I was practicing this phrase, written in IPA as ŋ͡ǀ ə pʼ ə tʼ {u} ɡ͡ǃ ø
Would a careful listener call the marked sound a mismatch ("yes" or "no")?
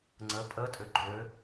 yes